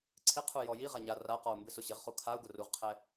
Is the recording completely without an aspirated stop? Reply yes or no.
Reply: no